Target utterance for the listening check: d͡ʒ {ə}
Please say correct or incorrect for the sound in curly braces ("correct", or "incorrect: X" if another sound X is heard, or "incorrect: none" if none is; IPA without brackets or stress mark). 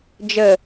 correct